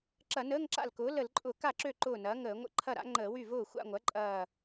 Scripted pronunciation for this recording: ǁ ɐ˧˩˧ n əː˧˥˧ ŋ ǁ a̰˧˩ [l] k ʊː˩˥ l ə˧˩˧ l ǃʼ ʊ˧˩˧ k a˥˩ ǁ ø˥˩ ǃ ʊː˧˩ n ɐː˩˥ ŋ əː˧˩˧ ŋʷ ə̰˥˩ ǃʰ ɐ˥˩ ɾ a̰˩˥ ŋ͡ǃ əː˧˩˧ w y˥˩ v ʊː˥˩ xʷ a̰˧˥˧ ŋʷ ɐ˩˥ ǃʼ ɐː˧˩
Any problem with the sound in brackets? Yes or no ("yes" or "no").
no